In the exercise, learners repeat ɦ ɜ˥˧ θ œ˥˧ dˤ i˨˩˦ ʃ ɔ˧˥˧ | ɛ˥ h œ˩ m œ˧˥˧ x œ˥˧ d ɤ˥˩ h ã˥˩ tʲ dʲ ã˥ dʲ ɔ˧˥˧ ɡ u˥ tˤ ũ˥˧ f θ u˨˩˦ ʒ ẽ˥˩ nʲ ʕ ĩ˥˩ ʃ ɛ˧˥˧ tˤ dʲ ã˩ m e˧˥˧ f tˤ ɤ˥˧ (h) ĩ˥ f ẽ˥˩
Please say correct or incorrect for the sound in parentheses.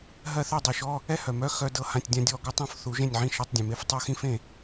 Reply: incorrect